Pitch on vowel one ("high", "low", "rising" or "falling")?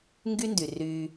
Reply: high